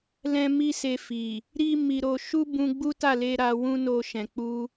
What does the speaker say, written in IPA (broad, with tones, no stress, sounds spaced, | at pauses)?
l ɛ̃˦ m i˦ s e˧ f i˨ | ɾ i˦ m i˧ ɾ o˧ ʃ u˦ b ũ˧ ɡ͡b u˦ t a˦˨ l e˧ ɾ a˧ w ũ˦ n o˧ ʃ ɛ̃˨ k͡p u˧